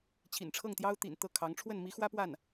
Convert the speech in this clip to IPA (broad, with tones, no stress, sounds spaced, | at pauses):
t͡ɕʰ ḭ˨˩ n ʈ͡ʂʰ ɤ˥˩ ŋ t̪ j ɑ˥ ʊ̯ t̪ ḭ˨˩ n t̪ ɤ˥˩ kʰ ɑ˧˥ ŋ ʈ͡ʂʰ w ə˥˩ n m i˧˥ x w ä˥ p w a˥˩ n